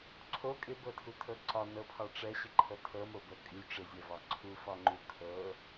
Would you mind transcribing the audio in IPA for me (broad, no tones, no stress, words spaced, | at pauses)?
ǀʰo kʼɪbɤtʰutʰɤ ǀɒnɤpʰɒ ʈ͡ʂɛɕɪǃʰɤ tʰɤmobɤ kʼy ʈ͡ʂɪzʲɛvɒ ǀʰufɒŋ͡ǃu kʰɤ